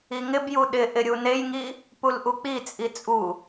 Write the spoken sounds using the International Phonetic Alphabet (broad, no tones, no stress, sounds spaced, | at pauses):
i ŋ ɪ b j u ɗ ɪ ʔ ɪ ɾʲ u n e j ŋ i | p u l ʔ u k͡p i t͡sʼ i t͡sʼ u